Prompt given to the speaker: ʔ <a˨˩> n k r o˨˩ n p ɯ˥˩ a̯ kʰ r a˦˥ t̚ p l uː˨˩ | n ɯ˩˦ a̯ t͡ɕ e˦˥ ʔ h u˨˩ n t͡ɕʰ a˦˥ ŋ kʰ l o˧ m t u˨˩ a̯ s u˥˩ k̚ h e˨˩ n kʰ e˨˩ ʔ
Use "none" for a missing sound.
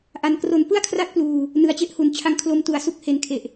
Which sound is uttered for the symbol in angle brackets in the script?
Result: a˨˩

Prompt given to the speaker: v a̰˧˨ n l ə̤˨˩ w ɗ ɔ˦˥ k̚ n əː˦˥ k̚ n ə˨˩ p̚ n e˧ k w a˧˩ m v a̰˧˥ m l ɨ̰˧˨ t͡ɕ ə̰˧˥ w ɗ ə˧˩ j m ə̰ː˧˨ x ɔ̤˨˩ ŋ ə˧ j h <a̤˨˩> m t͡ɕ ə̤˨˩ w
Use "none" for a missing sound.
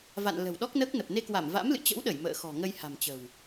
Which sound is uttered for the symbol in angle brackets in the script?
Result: a̤˨˩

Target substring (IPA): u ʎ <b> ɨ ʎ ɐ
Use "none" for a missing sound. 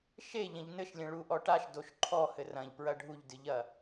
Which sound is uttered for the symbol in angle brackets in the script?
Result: d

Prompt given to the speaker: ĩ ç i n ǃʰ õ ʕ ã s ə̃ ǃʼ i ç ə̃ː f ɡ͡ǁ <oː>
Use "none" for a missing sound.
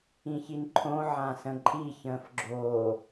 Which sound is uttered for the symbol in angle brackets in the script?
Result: oː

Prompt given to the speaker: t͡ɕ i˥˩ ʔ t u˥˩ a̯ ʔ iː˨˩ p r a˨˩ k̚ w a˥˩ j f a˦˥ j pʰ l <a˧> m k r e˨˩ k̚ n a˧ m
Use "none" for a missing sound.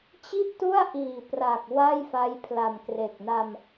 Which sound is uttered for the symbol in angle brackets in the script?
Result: a˨˩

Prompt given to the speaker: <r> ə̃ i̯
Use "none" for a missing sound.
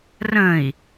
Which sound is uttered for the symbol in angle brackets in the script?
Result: r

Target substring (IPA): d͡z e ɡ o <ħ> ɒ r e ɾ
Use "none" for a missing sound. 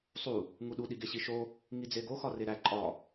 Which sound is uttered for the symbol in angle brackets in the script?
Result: x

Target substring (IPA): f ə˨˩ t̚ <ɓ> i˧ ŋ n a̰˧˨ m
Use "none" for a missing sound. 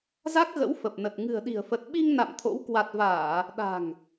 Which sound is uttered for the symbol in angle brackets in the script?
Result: ɓ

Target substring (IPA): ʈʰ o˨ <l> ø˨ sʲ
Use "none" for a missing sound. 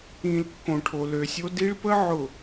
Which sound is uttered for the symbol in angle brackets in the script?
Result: l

